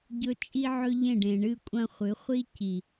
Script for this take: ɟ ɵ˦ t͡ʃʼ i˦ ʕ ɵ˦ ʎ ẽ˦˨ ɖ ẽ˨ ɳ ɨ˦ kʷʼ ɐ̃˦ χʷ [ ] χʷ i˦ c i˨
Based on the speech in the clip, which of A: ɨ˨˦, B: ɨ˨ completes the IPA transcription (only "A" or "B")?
A